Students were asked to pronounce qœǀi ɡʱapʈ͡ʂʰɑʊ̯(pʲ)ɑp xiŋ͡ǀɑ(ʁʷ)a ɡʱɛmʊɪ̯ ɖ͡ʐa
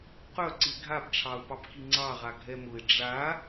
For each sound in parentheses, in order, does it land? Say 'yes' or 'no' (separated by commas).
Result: no, no